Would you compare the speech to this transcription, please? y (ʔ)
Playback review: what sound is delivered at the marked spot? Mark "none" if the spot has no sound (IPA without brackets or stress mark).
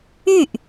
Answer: ʔ